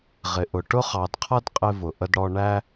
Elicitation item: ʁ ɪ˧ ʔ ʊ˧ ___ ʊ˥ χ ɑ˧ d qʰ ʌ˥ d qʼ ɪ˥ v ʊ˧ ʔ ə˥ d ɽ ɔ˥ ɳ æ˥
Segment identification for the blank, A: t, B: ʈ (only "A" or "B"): B